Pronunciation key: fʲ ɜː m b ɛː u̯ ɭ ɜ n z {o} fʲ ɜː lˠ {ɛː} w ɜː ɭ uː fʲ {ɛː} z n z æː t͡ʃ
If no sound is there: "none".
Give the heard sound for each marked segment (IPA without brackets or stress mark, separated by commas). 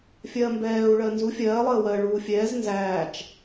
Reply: u, əː, ɛː